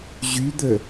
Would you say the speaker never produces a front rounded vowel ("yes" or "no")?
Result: no